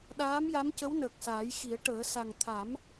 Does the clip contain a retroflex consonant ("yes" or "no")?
yes